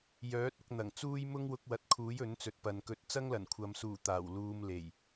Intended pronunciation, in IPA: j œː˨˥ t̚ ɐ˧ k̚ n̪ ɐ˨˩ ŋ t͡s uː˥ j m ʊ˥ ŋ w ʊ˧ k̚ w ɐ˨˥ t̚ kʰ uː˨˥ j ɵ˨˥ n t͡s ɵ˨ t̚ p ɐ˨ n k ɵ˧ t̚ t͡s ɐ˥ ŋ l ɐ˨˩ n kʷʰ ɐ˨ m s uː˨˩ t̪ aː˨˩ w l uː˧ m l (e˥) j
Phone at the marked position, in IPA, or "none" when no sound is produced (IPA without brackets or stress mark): e˨˩